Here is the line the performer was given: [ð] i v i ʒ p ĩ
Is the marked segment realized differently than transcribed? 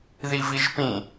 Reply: no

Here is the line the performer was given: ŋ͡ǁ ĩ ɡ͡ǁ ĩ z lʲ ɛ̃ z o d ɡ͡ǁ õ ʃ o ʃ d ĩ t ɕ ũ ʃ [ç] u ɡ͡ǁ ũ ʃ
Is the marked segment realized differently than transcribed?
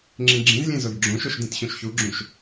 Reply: no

